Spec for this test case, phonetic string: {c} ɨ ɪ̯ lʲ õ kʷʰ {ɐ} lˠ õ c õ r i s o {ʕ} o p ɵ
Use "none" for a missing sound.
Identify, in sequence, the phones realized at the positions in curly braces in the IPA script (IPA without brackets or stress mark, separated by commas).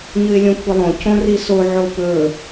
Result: ɲ, ɐ, ʕ